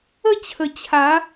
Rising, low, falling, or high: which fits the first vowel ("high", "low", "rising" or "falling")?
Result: falling